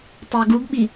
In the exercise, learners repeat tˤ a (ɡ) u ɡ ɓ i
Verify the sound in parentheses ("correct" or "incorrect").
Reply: correct